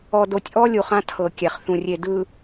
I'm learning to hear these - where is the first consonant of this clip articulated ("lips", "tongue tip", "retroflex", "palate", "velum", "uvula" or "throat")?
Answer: tongue tip